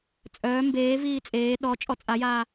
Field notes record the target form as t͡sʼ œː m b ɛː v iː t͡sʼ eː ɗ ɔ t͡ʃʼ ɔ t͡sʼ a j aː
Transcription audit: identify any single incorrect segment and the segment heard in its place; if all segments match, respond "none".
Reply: ɛː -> eː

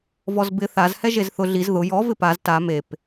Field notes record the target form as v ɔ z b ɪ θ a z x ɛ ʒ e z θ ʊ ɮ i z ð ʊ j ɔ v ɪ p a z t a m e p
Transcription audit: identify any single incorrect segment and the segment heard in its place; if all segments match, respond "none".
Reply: x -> h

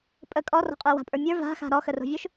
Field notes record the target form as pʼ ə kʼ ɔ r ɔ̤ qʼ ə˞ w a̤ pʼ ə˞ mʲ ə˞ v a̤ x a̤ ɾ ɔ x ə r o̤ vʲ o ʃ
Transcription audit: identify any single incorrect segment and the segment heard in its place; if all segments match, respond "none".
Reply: none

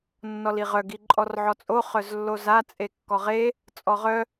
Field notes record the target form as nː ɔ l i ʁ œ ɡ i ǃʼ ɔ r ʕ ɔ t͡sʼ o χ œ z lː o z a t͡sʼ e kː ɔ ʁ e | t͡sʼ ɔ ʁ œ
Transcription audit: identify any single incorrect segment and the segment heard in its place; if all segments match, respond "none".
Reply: none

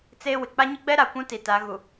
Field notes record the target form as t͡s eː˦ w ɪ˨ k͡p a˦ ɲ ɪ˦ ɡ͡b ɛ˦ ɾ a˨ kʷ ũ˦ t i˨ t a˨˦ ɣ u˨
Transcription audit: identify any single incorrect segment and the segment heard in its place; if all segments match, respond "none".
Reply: none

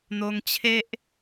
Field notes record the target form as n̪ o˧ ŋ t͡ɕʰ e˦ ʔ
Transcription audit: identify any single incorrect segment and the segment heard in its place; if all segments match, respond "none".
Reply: none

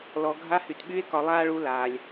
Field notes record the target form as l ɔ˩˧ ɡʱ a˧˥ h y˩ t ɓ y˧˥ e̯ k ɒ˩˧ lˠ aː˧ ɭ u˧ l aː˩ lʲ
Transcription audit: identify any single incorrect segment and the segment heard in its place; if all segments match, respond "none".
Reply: none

